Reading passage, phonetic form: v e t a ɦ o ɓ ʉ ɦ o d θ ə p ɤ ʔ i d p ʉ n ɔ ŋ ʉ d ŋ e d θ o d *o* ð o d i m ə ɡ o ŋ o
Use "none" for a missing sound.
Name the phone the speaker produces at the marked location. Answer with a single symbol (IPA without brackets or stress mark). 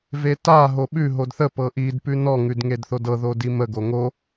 ɤ